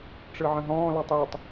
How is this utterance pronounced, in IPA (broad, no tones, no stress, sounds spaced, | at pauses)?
ʈ͡ʂ ɯ ʕ ə̃ ɦ ɔ̃ː l ɔ tˤ j y tˤ